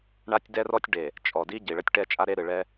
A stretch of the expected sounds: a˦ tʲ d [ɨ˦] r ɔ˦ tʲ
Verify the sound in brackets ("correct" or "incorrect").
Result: incorrect